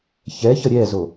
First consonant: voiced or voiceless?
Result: voiceless